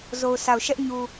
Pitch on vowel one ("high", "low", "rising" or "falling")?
low